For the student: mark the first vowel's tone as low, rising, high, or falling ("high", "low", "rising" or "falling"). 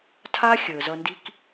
high